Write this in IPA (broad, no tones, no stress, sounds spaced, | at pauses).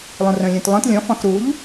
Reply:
lˠ ũ r œ̃ lʲ œ̃ t lˠ œ̃ t lʲ ɔ̃ f ɔ̃ x ɾ u ʎ